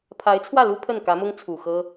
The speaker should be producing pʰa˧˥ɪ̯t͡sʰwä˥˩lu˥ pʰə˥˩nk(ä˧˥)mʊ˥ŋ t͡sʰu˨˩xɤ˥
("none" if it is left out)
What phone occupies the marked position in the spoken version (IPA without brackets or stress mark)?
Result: ä˧˥